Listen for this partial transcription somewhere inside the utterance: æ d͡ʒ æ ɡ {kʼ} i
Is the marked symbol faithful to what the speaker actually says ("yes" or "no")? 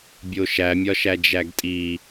no